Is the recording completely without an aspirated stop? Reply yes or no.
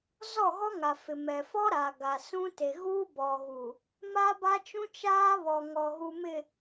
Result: yes